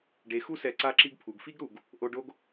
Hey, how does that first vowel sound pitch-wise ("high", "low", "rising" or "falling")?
rising